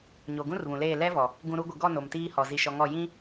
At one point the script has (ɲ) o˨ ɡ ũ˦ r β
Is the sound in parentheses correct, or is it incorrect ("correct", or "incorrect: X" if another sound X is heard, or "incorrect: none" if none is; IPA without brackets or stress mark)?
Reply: correct